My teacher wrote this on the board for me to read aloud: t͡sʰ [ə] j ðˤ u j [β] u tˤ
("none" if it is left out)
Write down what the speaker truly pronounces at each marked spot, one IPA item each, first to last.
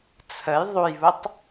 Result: ə, β

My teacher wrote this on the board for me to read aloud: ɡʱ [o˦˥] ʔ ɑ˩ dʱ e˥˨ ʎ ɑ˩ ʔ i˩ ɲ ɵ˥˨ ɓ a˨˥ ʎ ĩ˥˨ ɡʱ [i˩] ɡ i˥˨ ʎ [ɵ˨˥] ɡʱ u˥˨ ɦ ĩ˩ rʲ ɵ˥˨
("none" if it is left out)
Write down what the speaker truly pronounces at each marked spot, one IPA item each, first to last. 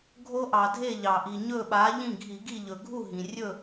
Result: o˦˥, i˧˩˧, ɵ˩

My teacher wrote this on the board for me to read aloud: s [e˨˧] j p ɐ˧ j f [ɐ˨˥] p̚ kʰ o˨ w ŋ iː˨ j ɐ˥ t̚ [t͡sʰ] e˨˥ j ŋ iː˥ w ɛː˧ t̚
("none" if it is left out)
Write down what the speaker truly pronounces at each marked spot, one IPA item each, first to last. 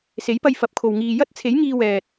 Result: e˨˥, ɐ˨˥, t͡sʰ

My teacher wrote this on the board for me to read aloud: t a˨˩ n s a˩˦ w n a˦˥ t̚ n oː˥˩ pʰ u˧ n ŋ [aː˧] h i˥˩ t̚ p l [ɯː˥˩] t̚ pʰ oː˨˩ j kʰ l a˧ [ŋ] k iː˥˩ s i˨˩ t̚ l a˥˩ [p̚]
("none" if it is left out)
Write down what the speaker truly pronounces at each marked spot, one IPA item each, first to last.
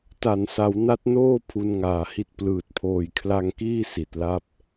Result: aː˨˩, ɯː˨˩, ŋ, p̚

